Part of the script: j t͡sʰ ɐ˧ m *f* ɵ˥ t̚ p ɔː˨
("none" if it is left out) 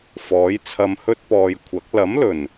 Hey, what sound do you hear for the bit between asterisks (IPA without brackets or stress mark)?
h